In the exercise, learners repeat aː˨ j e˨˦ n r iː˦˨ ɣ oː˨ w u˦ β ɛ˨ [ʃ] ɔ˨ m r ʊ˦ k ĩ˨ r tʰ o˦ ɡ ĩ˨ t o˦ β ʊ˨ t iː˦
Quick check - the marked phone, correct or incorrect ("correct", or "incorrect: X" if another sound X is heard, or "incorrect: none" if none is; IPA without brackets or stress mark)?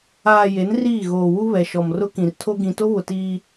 correct